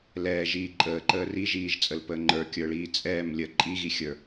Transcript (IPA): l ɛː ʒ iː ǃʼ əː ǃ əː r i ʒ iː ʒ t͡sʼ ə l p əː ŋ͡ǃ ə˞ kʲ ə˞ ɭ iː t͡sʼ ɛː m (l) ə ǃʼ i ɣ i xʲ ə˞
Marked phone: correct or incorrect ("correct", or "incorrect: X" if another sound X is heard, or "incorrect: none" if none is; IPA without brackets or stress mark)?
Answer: incorrect: lʲ